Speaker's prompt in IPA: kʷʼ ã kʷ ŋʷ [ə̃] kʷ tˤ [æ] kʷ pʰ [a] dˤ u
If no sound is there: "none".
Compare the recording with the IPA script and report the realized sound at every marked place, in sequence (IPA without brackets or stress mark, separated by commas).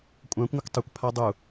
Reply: ə, ə, a